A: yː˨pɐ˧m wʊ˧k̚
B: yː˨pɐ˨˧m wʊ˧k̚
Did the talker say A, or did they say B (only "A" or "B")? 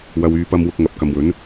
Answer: A